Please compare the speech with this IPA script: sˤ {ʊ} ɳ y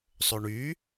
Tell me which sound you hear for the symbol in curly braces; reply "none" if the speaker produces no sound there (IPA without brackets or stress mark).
ɵ